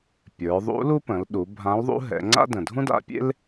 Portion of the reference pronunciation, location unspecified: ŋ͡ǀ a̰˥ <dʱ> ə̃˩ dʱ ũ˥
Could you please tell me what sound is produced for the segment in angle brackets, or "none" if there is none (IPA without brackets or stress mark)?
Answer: d